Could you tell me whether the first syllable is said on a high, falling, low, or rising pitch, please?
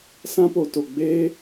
high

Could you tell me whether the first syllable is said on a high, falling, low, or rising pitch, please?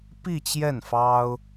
falling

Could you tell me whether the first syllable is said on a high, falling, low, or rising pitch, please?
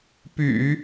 low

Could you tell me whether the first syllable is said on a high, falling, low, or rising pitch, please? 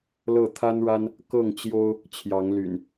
falling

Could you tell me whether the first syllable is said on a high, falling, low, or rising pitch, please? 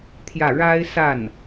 falling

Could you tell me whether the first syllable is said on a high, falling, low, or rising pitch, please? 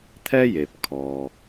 high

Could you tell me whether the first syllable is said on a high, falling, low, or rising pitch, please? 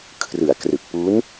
low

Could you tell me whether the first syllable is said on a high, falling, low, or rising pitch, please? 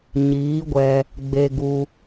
rising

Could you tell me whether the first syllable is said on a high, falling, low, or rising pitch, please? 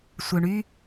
low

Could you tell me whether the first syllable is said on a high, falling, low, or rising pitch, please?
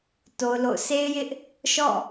high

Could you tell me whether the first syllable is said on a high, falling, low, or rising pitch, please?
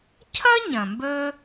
high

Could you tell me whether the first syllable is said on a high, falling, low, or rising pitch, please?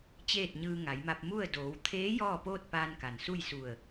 falling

